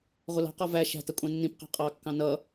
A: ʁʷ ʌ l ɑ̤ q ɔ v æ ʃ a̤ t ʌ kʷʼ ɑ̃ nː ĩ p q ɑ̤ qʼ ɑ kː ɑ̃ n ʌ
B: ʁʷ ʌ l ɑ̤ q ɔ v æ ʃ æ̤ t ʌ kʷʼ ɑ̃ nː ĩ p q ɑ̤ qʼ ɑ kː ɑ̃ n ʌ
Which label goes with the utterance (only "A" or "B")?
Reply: B